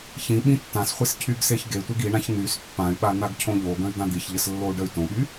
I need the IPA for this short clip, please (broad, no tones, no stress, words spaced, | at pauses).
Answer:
çĩ ɓĩtːãsχʷes cʰyɡseçɡetʷeɡ iɳãç n̪ys pːãy̯ɓa n̪aɡcʰõʎoɡə̃y̯ d̪ãd̪içʎəs lːou̯ɖəy̯tõɓy